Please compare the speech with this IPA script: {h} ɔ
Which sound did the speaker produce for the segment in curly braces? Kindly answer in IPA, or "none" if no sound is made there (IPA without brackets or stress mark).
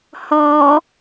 h